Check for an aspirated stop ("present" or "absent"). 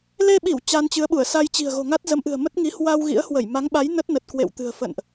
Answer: absent